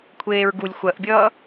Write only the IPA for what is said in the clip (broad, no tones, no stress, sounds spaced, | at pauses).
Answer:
kʷʰ eː ɹ ɡ u lʲ xʷ ɜ ʔ bʲ ʌː